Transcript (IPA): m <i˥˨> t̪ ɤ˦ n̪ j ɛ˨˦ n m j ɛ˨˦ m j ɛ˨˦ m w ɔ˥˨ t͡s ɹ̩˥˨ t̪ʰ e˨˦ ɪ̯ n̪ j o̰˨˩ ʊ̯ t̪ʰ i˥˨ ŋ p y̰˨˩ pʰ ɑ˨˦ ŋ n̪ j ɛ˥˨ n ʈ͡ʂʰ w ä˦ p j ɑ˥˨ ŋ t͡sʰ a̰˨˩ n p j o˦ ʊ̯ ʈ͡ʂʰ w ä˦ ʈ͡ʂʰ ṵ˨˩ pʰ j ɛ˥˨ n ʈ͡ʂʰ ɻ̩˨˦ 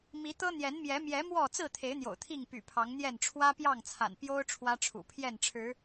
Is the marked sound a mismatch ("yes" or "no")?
yes